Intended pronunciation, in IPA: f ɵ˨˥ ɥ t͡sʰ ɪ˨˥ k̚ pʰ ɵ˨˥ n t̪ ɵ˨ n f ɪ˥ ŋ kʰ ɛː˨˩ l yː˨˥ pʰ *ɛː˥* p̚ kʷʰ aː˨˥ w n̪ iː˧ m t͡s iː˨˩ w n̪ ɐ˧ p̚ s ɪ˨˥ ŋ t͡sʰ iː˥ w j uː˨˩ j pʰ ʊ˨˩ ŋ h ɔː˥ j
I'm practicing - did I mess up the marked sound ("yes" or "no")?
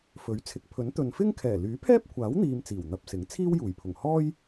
no